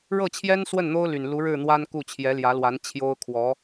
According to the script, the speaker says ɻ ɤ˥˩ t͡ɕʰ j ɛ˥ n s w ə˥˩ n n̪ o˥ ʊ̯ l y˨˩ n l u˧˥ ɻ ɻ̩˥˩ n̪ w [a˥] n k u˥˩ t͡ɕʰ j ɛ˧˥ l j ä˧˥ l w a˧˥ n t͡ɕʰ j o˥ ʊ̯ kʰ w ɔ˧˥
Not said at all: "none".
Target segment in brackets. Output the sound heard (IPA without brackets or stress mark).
a˥